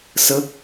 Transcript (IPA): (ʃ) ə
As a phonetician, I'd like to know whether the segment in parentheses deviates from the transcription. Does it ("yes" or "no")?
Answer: yes